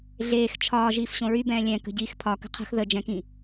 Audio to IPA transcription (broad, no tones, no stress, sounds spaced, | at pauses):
ɮ eː x t͡ʃʰ ɒː ʒ iː f ɕ õ ɹ y b ɛ̃ː lʲ ɛ̃ k ə̤ ɟ iː x pʰ ɒ k ə̤ qʰ ə̤ x ð ə d͡ʒ ɛ̃ k ĩ